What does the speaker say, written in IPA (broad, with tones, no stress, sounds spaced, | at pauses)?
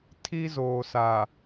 tʰ i˦ z oː˨ s a˨